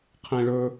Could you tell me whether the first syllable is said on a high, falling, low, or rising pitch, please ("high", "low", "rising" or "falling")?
high